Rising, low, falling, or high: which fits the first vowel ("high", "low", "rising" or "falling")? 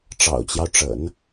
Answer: low